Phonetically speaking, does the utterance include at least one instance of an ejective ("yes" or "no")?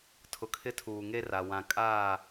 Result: yes